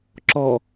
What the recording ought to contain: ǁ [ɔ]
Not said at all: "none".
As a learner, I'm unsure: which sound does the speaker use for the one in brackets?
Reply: ɔ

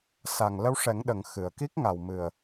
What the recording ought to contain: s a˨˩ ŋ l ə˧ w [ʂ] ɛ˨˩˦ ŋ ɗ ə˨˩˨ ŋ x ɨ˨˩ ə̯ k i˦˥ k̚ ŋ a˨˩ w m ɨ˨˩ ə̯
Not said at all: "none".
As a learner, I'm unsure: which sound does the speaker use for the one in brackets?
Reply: ʂ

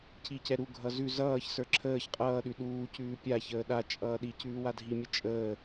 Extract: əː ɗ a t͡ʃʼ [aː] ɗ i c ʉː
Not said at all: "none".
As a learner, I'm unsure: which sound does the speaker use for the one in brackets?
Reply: ʌː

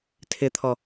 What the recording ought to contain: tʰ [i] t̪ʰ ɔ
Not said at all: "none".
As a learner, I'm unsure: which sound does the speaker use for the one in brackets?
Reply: ɪ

